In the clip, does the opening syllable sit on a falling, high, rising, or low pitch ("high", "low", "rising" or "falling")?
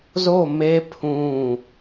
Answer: falling